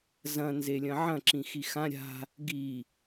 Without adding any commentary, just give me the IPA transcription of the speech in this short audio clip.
z ɐ̃ n z e lʲ ɐ̃ ʕ ɐ̃ ǁ ĩ x i x ã ɾʲ a̤ | ɡ i

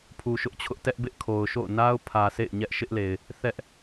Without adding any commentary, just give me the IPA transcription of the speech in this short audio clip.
pʰ u˨ ʃ ʊ˦ ʔ t͡ɕʰ ʊ˦ ʔ t ɛ˦ ʔ b ɪ˦ ʔ kʰ o˨ ʊ̯ ʃ o̰˦˨ ʊ̯ n a˦ ʊ̯ pʰ ä˨ sʰ ḛ˦˨ ɪ̯ ɲ ɛ˦ ʔ ʃ ɪ˦ ʔ l e˨ ɪ̯ | θ ɛ˦ ʔ

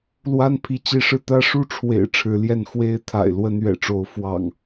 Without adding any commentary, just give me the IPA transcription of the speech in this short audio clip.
l w a˦ n pʰ i˨˦ t͡ɕ i˨˦ ʂ ɻ̩˧ t̪ ä˦ ʂ u˥˨ ʈ͡ʂʰ w ḛ˨˩ ɪ̯ ʈ͡ʂʰ ɻ̩˨˦ l j ɛ˥˨ n x w e˦ ɪ̯ t̪ʰ a̰˨˩ ɪ̯ l w ə˦ n ɥ ɛ̰˨˩ ʈ͡ʂ o˨˦ ʊ̯ f w ɑ̰˨˩ ŋ

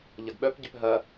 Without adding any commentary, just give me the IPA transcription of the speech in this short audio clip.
ʎ ɐ ɡ ɓ œ p ɟ ʏ p ɦ ɐ

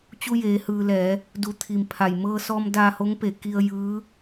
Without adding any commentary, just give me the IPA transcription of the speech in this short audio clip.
t͡ɕ u˧ j eː˩˧ h ɯː˩ l ɛː˩˧ | d u˧˩ t̪ʰ i˩ m pʰ a˧˩ j m ɤː˧ s ɔː˧ m d aː˧ h o˧˥ ŋ p e˧˩ k i˧ ə̯ j ɯː˧˥

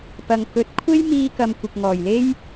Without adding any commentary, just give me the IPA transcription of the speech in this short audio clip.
p ɐ˨ ŋ k ɵ˨˥ t̚ kʷʰ e˥ j m iː˧ k ɐ˨ m kʷ ɪ˨ k̚ ŋ ɔː˨˩ j l e˥ j

